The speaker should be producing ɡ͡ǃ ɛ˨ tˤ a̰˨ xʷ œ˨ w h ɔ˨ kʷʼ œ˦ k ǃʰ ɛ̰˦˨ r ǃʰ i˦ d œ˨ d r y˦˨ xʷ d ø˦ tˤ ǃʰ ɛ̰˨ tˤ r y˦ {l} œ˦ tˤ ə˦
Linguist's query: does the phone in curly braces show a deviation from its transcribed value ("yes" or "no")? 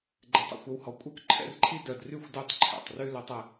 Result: no